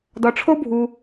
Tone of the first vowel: low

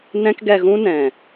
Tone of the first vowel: high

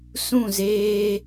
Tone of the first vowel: falling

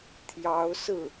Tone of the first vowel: rising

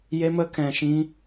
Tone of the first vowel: high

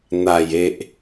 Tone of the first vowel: low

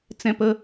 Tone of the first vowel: high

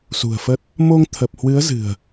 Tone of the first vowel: low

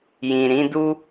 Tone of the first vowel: low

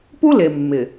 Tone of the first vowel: high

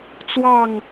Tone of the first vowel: falling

